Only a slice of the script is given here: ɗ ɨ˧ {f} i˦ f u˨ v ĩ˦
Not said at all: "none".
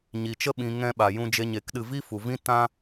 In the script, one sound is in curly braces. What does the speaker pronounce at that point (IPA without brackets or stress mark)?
v